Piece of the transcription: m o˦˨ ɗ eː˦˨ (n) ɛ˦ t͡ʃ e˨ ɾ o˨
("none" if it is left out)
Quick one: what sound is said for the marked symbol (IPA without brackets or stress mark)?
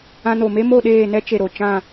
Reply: n